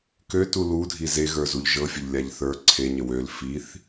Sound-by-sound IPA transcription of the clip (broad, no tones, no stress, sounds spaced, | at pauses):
k ø t u l u dʱ i z e ɣ ə˞ z u ʎ ʒ ɤ fʲ ə ʎ lʲ a ʎ θ ə˞ ǀʰ e ɲ ə w ø l f i θ